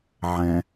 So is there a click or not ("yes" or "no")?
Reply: no